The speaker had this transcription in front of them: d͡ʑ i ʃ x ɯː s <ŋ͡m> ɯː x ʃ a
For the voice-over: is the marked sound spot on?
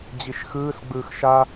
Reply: no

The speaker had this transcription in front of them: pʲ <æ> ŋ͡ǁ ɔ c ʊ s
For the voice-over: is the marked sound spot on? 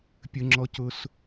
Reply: no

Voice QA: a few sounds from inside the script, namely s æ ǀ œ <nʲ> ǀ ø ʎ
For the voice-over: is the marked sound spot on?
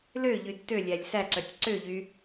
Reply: no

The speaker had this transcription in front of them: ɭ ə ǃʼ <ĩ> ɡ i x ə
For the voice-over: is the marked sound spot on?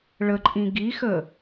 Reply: yes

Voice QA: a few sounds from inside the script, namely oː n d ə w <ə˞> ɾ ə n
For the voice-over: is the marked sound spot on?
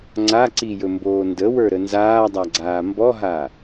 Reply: yes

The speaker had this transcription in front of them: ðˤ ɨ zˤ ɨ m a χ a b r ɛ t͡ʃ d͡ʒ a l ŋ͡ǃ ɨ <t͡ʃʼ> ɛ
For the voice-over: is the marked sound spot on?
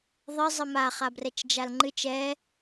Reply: no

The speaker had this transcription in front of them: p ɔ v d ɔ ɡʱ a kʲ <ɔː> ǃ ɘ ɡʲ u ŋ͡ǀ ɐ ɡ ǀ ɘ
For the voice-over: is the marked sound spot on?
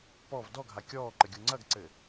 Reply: yes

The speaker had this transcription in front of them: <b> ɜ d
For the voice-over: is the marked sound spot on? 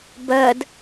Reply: yes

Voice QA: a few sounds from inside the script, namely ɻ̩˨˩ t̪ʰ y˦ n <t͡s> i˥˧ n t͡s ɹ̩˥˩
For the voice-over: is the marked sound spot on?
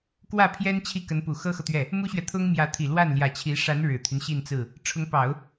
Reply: no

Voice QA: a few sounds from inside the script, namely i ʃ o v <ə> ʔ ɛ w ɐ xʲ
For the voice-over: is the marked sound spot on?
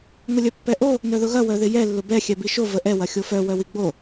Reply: yes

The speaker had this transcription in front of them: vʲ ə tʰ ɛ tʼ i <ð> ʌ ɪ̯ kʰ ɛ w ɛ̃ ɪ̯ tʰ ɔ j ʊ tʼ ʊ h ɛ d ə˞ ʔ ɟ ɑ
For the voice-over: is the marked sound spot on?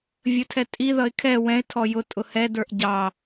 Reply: yes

